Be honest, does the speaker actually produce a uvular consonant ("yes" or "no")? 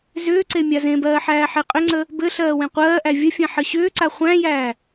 yes